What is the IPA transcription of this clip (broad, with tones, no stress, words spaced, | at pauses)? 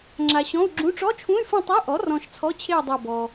ŋ͡ǁa˨ɕɔ̃˧˥˧u̯ɡ͡ǁũ˧˥˧ ʈ͡ʂɔ˧˥˧t͡ʃʰũ˧˥˧y̯fũ˦˨ tˤe˧˥˧ʔɔ˩˥rɔ̃˨ʃ t͡sʰɔ˧˥˧t͡ɕʰe˦˨u̯ dˤa˦˨bɔ˨